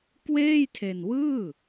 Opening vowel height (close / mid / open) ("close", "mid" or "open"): mid